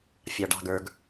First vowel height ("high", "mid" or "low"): low